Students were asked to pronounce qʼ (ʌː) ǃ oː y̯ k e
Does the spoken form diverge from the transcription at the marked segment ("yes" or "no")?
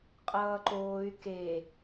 no